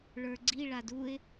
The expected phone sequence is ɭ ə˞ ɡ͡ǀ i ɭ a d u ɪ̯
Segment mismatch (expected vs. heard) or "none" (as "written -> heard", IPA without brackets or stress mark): none